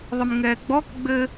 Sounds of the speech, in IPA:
ðˤ ɪ m ŋ ɛː ɡ͡b ɔ k ɡ͡b ɘ

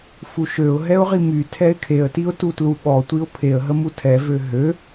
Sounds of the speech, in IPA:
f u ʃ ø ʊ̯ ɦ ɛ ʊ̯ ʁ i m y tʰ ɛ ɪ̯ kʰ e ə̯ t i ʊ̯ t u t l u ɓ ɔ tʷ i ʊ̯ pʰ e ə̯ ɦ ə m u tʰ ɛ v ø ɦ ø

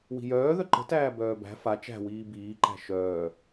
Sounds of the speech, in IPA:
w i̤ j œː ð œ ǃ ə̤ t æː b œː b æ̤ f a t͡ʃ æ̤ w iː b iː ǃ æ̤ ʃ œː

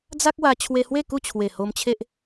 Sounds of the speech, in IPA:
d͡z a˦ k̚ w a˧ t͡ɕʰ w e˧ h w e˥˧ k u˥˧ t͡ɕʰ w e˨˩ h o˧ m t͡ɕʰ e˦ ʔ

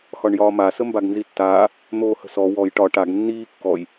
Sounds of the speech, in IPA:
x ɒ ɳ j ɒː m a s ə m b a ɡ n z i tː aː | n̪ oː h ə̤ s ɔ w ɔ j ʈ ɒ ʈ a ɡ nː iː kː ɔ j

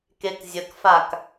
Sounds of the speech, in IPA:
k e k zʲ ə k f a k

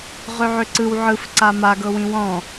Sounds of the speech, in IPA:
ʁ ø ʕ ø ǀ ɯ w ʕ ɯ f ǀ a m a ɡ ɤ w ĩ w ɔ̃

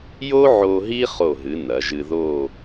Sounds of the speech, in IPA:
j o˥ ʕ o˧ ɦ i˥ χ o˧˩ ɦ ɨ˩˧ n ɐ˩˧ ʒ ɨ˧ ð o˥˧

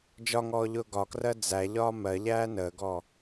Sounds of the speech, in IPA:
d͡ʒ ɒ ŋ ɔː ʎ ʊː ɡ ɒ k r ɜ d͡z æ ʎ ɒː m ɜ ʎ æː n əː ɡ ɔː

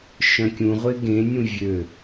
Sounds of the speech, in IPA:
ʃ œ̃ kʲ ũ ʁʷ e ɡ ẽ nʲ ũ vʲ ø

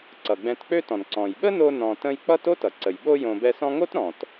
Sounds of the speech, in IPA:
ǀ ʌ˩ ɡ͡b ɛ̃˨ t k͡p ø˦ t ɔ̃˩ n ǀ ɔ̃˩ j ɓ ə˥ n o˦ n ɔ̃˨ t ə̃˦ j k͡p ʌ˥ t o˥ t ʌ˩ ǀ ə˩ j ɓ o˥ j õ˨ b ɛ˦ s ɔ̃˥ ŋ o˥ t ɾ ɔ̃˩ t

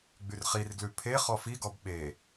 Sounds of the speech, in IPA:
ɡ͡b y r χ i r ɡ l ʉ pʰ e χ ɔ f i ɡ ɔ b ɓ e

